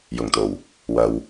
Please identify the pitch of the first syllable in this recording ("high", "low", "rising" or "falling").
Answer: low